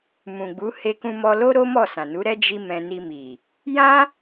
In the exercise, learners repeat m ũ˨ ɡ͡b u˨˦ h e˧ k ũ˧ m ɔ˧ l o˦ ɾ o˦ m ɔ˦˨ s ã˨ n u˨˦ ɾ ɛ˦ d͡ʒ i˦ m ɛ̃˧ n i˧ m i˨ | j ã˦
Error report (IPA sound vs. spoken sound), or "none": none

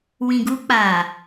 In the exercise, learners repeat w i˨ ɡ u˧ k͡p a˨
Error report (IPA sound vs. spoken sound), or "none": i˨ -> ĩ˨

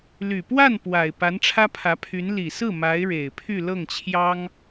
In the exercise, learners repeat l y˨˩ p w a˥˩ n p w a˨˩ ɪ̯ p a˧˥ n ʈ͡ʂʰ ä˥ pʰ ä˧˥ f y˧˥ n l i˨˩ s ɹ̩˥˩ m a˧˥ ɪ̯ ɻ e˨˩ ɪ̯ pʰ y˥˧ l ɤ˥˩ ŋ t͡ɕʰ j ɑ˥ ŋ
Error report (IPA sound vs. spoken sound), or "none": f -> pʰ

